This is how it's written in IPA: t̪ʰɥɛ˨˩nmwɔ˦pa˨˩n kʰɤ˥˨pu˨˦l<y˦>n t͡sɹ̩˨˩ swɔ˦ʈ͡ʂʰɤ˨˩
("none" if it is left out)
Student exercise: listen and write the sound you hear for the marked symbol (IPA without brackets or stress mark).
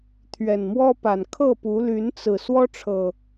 y˨˦